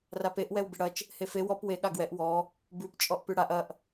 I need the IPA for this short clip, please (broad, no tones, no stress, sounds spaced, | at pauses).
r a p e ʔ w ɛ w b ɪ ɽ ɐ t͡ʃ | h e f e w ɔ p w e ɠ a ɡ w ɛ ʔ w ɔ | b ʉ p t͡ʃʼ ɔ ʔ p ʉ ɽ a ʔ ɐ ʔ